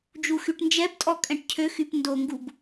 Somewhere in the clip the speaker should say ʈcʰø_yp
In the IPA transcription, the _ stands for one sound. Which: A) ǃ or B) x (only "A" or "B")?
B